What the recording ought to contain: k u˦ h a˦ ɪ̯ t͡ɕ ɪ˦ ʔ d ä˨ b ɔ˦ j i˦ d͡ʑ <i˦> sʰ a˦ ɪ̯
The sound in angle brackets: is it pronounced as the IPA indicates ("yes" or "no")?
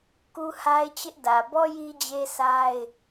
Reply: no